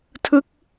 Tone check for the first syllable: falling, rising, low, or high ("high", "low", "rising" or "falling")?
falling